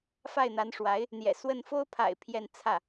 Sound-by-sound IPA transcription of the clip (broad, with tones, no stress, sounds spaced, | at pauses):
f a˥˩ ɪ̯ n̪ a˧˥ n ʂ w a˧˥ ɪ̯ | n̪ j ɛ̰˨˩ s w ə˥˩ n f o˥ ʊ̯ pʰ a̰˨˩ ɪ̯ pʰ j ɛ˥˧ n t͡sʰ ä˥˩